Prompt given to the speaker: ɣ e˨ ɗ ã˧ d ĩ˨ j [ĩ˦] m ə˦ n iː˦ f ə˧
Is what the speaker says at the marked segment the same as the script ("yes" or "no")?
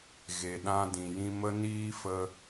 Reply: no